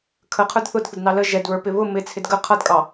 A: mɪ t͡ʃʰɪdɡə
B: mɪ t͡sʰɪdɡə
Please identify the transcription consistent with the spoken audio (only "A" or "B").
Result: B